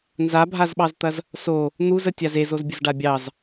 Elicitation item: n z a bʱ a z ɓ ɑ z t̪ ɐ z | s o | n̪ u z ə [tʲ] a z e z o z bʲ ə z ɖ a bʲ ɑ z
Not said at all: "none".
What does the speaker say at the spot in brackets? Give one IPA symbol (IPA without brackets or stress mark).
tʲ